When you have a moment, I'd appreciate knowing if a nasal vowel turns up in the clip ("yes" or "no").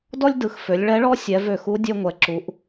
no